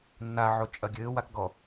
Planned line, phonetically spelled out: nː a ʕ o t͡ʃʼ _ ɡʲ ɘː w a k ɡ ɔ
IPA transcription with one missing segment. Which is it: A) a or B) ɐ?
B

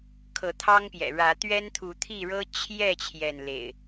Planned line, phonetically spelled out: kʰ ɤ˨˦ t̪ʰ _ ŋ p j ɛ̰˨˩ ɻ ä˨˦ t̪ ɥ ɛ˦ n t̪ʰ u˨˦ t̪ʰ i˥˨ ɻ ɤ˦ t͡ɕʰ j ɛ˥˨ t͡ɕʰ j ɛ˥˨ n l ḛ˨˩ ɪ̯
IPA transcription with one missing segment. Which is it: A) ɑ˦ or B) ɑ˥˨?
A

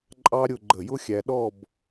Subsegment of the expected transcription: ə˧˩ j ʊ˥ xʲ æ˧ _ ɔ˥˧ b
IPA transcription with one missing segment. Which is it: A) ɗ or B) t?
A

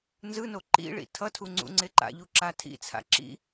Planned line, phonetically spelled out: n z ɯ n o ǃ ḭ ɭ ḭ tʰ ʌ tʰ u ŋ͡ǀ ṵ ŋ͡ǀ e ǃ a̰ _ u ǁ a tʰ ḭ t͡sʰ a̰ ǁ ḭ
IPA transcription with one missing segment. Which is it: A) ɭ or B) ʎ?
B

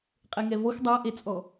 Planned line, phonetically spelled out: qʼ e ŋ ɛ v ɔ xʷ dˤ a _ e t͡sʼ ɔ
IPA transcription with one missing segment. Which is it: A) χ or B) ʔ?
B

